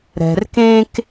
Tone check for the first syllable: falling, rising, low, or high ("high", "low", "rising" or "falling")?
low